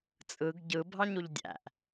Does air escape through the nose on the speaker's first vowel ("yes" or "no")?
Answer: no